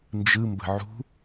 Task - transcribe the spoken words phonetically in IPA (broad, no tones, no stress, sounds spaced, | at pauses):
n d͡ʒ ɯ m b ə̤ ʕ ṳ